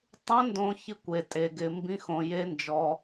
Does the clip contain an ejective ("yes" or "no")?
yes